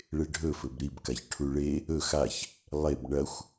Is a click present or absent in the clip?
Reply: absent